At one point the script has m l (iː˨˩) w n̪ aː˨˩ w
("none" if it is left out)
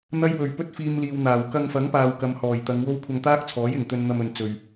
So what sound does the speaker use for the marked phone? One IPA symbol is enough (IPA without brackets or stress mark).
iː˨